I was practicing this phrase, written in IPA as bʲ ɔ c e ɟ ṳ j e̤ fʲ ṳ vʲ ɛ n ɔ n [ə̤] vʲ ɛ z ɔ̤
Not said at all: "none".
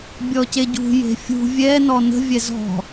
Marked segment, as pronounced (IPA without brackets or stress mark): ə̤